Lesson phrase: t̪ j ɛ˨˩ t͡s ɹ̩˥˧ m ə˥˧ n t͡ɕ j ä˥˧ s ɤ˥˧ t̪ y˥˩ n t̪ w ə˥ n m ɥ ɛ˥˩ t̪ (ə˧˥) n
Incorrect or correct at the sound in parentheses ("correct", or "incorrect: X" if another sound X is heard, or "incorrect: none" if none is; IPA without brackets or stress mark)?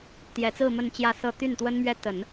incorrect: ə˨˩˦